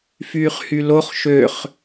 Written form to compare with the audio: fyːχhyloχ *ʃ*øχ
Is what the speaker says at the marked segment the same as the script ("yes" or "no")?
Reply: yes